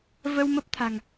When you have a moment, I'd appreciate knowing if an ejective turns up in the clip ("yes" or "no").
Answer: no